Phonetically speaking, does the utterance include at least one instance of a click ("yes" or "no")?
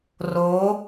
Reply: no